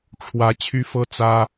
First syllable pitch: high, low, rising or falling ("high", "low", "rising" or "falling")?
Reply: rising